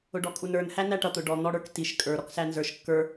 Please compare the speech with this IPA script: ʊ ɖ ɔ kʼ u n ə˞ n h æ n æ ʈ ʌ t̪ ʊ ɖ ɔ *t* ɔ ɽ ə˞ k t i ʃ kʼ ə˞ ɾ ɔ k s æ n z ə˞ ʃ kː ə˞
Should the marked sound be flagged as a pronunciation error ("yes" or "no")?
yes